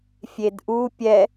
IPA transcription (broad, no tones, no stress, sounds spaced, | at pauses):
fʲ e d ʔ u pʲ ɛ